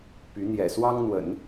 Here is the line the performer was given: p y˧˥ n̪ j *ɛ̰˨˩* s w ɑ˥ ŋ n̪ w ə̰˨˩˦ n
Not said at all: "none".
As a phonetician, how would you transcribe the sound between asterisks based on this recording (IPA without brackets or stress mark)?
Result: ɛ̰˨˩